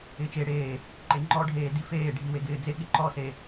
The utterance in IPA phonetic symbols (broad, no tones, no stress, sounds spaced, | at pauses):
ɪː t͡ʃ e ɽ eː | ǃ e ŋ͡ǃ ɔ ɖʱ eː d i f eː ɖʱ i w e ɡ ɪː d͡z e ɠ ɪ ǃ ɔ s e